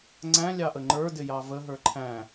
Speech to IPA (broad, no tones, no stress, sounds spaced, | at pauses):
ŋ͡ǀ æ̃ lʲ ɑ ʔ ə ŋ͡ǃ ə˞ d ɪ j ɑ v ə ɦ ə˞ ǃʰ æ̃